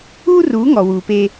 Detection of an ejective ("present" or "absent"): absent